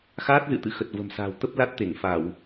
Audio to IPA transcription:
x aː˦˥ t̚ z ɨ̰˧˨ t̪ ɨ̰˧˨ x ə˨˩ t̚ v ə̤˨˩ m s a̤ː˨˩ w t̪ ə˦˥ p̚ l a˦˥ t̚ t̪ e˧˩ ŋ f a˧˩˨ w

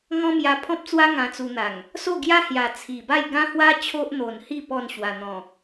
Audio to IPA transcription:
ŋ ɔ̃˦ m j a˧ pʰ ɔ̃˦ p̚ t͡s w a˦ ŋ ã˧ t͡s u˧ n̪ a˨˩ ŋ | s o˥˧ ɡ j a˦ h j a˨˩ t͡sʰ i˨˩ b a˥˧ j ɡ ã˦ h w a˦ t͡ɕʰ o˦ ʔ n̪ o˨˩ n h i˥˧ p ɔ˥˧ n ɕ w a˨˩ n̪ ɔ̃˨˩

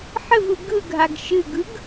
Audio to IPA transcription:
ħ ɘ v ɯ ɡ ɯ ɡʱ a ɡ ʃ ɨ ɡ ɯ ɡ

